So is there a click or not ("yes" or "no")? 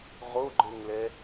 yes